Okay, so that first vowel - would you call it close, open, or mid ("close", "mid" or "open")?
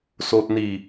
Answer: mid